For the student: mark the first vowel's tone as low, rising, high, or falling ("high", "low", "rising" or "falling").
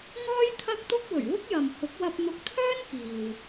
high